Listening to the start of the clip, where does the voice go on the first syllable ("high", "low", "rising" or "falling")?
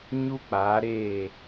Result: high